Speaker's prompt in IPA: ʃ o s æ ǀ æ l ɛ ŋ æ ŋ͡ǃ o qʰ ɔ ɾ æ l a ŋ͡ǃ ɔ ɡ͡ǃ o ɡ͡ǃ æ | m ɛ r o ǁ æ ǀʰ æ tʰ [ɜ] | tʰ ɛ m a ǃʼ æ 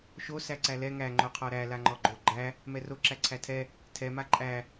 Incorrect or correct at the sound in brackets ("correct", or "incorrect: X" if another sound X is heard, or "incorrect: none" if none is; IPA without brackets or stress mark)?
incorrect: ɛ